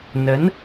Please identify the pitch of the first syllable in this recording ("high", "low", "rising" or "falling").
rising